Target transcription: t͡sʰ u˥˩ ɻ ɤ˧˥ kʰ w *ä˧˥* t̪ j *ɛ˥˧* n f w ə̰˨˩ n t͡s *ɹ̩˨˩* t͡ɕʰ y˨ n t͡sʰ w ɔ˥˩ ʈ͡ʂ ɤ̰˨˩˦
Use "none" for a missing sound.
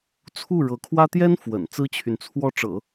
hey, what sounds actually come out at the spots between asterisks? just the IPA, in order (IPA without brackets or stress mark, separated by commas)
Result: ä˥, ɛ˥, ɹ̩˥